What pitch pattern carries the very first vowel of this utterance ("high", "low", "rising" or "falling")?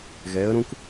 rising